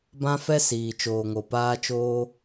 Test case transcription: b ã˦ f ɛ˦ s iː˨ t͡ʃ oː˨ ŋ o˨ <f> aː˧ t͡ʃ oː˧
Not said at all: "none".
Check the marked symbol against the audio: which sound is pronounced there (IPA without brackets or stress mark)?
p